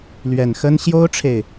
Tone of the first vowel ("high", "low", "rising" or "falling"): low